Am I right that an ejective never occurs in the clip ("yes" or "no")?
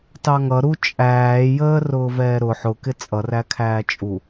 no